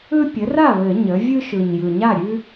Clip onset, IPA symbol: ɯ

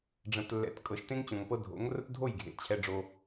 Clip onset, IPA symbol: ɖ͡ʐ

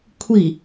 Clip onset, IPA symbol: kʷʰ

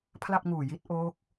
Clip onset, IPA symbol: pʰ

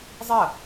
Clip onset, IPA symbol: zˤ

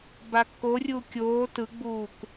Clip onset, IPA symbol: b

